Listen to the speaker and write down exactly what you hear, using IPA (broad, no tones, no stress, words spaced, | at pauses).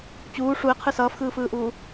t͡ɕuː ʂuɪ̯qʰɯ sʌːfxɯːfɯːʔuː